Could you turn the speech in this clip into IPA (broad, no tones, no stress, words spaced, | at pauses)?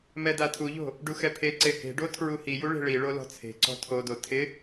mɛdatʰuʎo̤ | ɖuxɛpʰeǀe he̤ɖo tʰɹuhiju ɭe̤ɭiɭo lɔ̤t͡sʰe̤ǀɔ̤ tʰodo tʰɪ